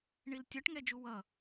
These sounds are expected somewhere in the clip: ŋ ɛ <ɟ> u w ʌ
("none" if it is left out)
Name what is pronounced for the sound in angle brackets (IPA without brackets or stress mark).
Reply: d͡ʒ